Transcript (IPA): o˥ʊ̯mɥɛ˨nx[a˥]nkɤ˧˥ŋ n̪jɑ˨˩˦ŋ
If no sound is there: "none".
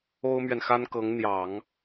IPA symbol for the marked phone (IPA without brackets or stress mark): a˥